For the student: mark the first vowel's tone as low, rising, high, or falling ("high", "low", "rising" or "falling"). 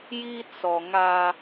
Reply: high